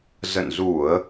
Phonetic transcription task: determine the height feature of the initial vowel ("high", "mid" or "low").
mid